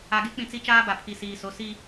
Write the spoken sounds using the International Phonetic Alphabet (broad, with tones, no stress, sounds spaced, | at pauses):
a˨ ɡ e˦ k͡p ĩ˨ t͡s i˦ t͡ʃ aː˦ b a˨ pʰ i˨ s iː˨ s o˨˦ s i˦